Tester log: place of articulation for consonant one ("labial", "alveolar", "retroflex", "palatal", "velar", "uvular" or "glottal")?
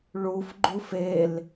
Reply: retroflex